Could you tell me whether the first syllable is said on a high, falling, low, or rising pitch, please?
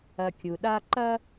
low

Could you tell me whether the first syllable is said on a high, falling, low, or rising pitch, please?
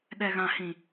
low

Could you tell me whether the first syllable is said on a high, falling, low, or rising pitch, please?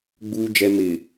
low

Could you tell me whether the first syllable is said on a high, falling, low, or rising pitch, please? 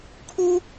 high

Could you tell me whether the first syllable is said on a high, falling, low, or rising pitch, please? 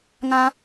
high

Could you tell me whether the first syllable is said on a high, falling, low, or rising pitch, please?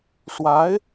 rising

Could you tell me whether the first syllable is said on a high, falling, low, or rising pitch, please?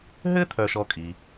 high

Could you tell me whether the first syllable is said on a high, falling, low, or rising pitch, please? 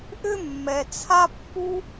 high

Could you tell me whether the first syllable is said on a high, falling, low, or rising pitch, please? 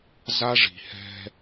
high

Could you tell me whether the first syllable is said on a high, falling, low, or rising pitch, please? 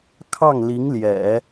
falling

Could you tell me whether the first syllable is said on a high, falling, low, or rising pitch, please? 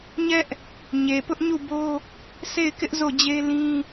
high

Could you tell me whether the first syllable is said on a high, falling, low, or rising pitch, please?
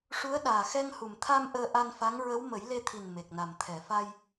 rising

